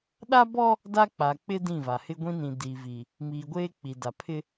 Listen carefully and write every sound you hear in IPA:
ɗ a˦ b ɔ˦ | d a˦ k͡p a˨ k͡p ɪ˦ d ĩ˦˨ v a˨ h ɪ˦ ɡʷ ĩ˦ n ĩ˨ d i˨ v i˨ | m iː˨ ɡʷ eː˦ k͡p i˨ d a˨ pʰ ɪ˦

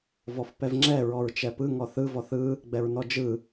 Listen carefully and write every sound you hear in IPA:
v ɔ f p ɛ v ŋ͡ǁ ɛ ɹ ɔ ɹ t͡ʃ ɛ p ɯ ŋ ɔ θ ɯ v ɔ θ ɯ | ɡ͡b ɛ ɹ n ɔ d͡ʒ ɯ

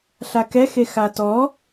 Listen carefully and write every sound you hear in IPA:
ɬ a k ɛ x e x a t ɔ

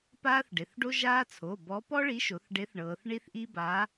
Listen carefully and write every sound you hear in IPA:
p aː˦ θ ɖ e˩˧˩ θ ɖ o˦ ʒ aː˦ t͡sʰ o˩˧˩ b ɔ˨˥ p ɔ˦ ɭ i˨˥ ʃ o˩˧ θ ɖ e˨˥ θ ɳ ɤː˩˧ θ ɳ i˦ θ ʔ i˦ b a˨˥

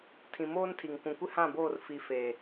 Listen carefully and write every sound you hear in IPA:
tʰ ĩ˨ m oː˦ n tʰ i˨ ŋ kʷ ũ˨ kʷ ɪ˦ h ã˦˨ b oː˦˨ r f i˨ f eː˨

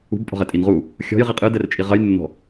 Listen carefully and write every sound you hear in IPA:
ṳ b pʼ ɔ̤ ʁ ɛ tʼ i n ʁ u | xʲ ɔ̤ j ʁ i qʼ ɨ d ɛ r t͡ʃʼ i ʁ ɐ j nː ɔ̤

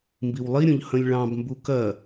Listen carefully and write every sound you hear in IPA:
m b i w lˠ i ɾʲ õ ʎ h ə̃ lʲ ɭ ɑ̃ b m b u k ɜ

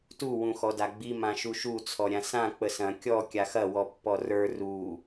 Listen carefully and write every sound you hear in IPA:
t u w ũ x ɔ d a ɡ͡b i m ã ʃ u ʃ u t͡sʰ ɔ ɾʲ ã s ã k͡p ə s ɐ̃ kʲ ɔ kʲ a x ɐ w ɔ pː ɔ r ə˞ r u

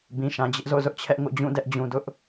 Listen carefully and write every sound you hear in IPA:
b ĩ˨ ʃ ã˨ d͡ʑ ɪ˦ ʔ z o̰˦˨ z ʊ˦ ʔ t͡ɕʰ ɛ˦ ʔ ŋ o̰˦˨ d͡ʑ ũ˦˨ d ɛ˦ ʔ d͡ʑ ũ˨ d ʊ˦ ʔ

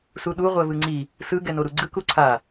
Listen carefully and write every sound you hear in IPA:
s u ɗ u ʁʷ ɛ v ɯ ŋ͡ǀ i | s ɯ ɡ ɛ n o ɾ u ɡ͡ǀ ɯ k u ǀʰ a

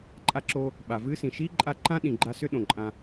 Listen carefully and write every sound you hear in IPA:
ǃʼ a˧ ǁ oː˧ | ɓ a˨ v ɨː˦ s ĩ˨ ʃ iː˦ ǃʼ a˧ ǃ ã˦ ɗ ĩ˨ ɡ͡ǃ a˧ s ʏ˦ ɗ õ˨ ǃʼ ã˧

